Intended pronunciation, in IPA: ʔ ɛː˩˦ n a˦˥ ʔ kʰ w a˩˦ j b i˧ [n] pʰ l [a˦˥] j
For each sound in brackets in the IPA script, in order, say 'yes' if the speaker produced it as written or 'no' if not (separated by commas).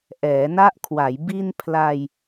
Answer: yes, no